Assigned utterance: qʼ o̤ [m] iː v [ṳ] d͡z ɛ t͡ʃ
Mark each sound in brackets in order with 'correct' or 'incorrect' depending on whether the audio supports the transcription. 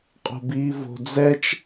incorrect: b, incorrect: o̤

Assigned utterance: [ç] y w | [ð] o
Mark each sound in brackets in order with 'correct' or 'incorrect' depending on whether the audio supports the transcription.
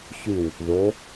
correct, correct

